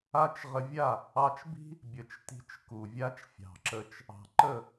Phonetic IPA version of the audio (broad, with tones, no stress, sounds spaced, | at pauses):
a˦ t͡ʃ ʁ ə˧ vʲ a˦˨ | ɑ˧ t͡ʃ b i̤˦ | bʲ ə˨ t͡ʃ t i̤˧ t͡ʃ k u˨ vʲ a˦ t͡ʃ fʲ ɑ̤˨ ǁ ə˧ t͡ʃ | ɑ̤˨ ǃ ə˦˨